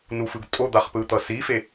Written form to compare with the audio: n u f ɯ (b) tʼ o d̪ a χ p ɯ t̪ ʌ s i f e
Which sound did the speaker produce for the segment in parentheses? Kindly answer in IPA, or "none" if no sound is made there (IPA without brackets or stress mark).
ɡ